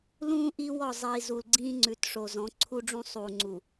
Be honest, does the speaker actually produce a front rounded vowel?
no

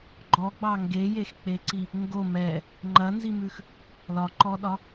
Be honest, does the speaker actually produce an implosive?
yes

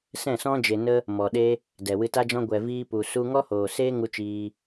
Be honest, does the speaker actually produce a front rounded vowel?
no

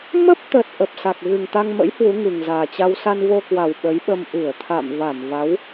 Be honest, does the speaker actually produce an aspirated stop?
yes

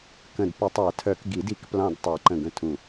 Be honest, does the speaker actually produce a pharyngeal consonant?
no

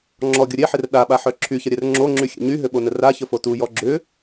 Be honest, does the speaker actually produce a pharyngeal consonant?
yes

